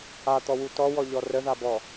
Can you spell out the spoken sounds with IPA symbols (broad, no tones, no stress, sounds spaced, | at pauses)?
a t̪ ɔ w u t ɔ w ɔ ʎ ɔ r ə ð a b ɔ